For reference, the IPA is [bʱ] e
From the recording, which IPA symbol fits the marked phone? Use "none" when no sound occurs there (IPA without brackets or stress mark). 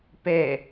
p